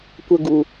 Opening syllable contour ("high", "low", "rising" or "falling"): high